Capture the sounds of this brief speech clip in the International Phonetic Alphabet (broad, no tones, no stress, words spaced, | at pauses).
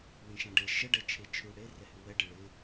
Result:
wẽʃãɖe ʃə ɖɛt͡ʃʰet͡ʃʰʉ ɽe rɛhʉwɛ ɖɪɭɪ